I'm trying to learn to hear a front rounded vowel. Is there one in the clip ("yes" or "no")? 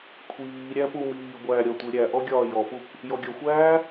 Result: no